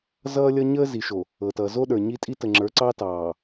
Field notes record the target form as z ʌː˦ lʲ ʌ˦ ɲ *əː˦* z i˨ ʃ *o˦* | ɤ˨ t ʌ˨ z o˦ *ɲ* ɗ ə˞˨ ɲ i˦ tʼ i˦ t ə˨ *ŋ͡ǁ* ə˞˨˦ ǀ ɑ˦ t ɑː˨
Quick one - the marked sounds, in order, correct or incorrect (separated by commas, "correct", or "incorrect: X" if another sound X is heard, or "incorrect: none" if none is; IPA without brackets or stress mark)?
correct, incorrect: o˨, incorrect: none, correct